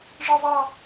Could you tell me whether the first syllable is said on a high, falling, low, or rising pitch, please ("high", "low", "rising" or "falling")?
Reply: high